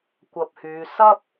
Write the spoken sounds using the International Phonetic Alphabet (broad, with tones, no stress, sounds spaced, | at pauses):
kʷ ɐ˧ p̚ h yː˨˧ s ɐ˥ p̚